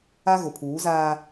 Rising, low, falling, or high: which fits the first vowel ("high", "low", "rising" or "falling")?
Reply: high